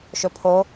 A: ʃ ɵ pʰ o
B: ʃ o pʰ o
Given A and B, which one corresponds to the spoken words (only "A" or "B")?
A